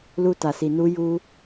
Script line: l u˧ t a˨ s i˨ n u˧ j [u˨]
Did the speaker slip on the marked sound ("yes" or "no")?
yes